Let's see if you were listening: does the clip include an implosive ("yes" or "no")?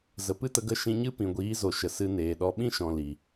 yes